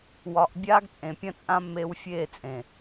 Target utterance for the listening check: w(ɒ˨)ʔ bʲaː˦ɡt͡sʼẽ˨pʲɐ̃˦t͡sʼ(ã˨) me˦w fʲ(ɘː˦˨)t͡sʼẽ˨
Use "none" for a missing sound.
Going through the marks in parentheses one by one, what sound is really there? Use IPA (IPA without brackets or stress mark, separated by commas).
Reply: ɒ˨, ã˦, eː˦˨